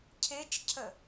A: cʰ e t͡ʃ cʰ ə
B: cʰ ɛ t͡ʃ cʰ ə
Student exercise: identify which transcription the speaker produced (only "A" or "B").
A